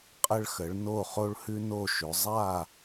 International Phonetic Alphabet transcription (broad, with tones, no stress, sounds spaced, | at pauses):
qʼ ə˧ ɭ x ə˩˧ ɭ n o˧˩ χ o˧ ɭ h ʉ˧ n o˧˩ ʃ ʏ˩˧ zˤ a˧˩